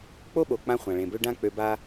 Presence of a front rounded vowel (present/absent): present